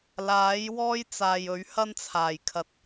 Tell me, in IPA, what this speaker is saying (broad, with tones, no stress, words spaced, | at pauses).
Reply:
laː˨˥j wɔː˥jt͡saː˨jɵ˨˥ɥ hɐ˥nt͡sʰaː˨˩j kʰɐ˨˥t̚